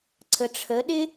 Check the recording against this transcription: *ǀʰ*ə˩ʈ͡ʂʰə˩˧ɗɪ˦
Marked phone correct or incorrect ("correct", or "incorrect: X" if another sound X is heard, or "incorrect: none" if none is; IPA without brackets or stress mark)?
correct